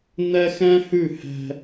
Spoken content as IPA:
n̪ ɛ˦ x ɛ̃˦ h ʉ˦˨ h ɛ̤˦

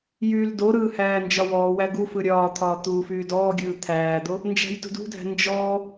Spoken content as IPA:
j yː l d o ɾ ɯː h æː n d͡ʒ ɒ w ɔː w æ ɡ u f ɯ ɾʲ ɒː t̪ʰ ɒː t̪ uː f yː d ɔː ɡʲ ɯː t̪ʰ æː d̪ o | n d͡ʒ æ̤ j t ṳ d ṳ dʱ æ̤ n d͡ʒ ɔː

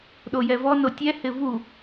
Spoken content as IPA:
ɗ o j ɛ v ɔ n o tʲ ɛ h ɪ v u

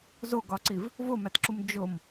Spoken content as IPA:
z o ɡ ɒ ǀ i v | v o m æ t ǁ u m d͡ʒ o m

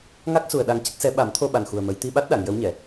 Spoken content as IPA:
ŋ a˦˥ k̚ s u˨˩ ə̯ ɗ a˧ ŋ c ə˦˥ k̚ s ɛ˧˥ ɓ a˨˩˦ m t̪ʰ o˧ ɓ a˨˩ n x u˨˩ ə̯ m ə˨˩˦ j t̪ i˧ ɓ a˦˥ t̚ ɗ a˨˩˨ ŋ j ə˧˥ w ɲ ɛ˨˩˨

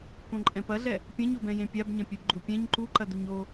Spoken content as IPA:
k õ ǃʼ ɛ̃ p ɐ ɮ ɛ | pʲ ɐ̃ ɲ o b ɛ̃ j ẽ pʲ a b ɲ ɐ̃ pʲ ɛ b ɡ͡ǃ u pʲ ɛ̃ ɲ ǃ u ǃ ɐ d u ɲ o

